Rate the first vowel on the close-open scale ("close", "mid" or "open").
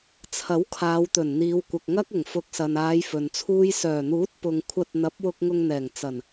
open